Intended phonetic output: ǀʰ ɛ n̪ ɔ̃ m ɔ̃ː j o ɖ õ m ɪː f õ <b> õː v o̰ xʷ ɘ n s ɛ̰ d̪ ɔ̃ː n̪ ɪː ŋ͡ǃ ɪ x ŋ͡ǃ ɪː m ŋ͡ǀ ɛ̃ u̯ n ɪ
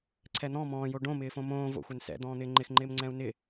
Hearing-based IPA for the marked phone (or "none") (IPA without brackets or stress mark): m